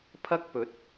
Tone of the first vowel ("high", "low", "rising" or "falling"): high